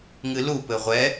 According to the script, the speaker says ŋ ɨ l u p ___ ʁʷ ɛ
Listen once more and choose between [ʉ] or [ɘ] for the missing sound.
ɘ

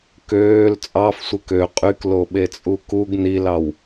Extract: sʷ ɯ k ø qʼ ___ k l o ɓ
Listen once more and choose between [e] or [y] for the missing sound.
y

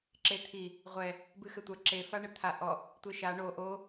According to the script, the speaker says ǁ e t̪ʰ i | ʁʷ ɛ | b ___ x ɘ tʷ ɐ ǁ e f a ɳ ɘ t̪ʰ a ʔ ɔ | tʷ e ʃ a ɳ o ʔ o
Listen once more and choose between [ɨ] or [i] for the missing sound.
ɨ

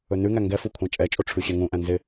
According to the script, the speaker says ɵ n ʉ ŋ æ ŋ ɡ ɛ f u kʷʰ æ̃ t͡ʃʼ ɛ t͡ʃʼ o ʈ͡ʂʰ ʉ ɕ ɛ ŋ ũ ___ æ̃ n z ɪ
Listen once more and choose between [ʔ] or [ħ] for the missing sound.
ʔ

